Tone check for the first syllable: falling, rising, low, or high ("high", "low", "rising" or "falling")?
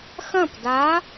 falling